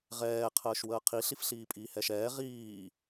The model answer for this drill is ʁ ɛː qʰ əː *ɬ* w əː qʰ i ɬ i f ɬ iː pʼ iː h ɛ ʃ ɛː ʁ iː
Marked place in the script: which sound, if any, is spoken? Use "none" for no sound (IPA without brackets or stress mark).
ʃ